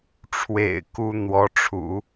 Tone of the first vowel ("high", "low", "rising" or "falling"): low